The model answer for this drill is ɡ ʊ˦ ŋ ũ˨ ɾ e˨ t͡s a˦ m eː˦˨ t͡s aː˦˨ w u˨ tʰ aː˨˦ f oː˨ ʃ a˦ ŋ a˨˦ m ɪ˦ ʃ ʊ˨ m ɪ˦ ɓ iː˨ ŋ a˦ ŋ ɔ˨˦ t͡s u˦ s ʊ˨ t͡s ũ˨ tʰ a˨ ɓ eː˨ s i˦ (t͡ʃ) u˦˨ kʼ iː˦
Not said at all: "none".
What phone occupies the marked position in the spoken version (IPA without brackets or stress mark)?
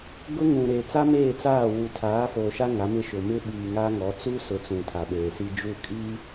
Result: d͡ʒ